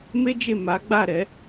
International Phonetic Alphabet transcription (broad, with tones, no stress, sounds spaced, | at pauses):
m e˦ d͡ʒ e˦˨ m a˨˦ ɡ͡b a˦˨ ɾ ɛ˨˦